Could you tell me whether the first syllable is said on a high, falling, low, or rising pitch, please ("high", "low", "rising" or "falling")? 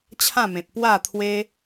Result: falling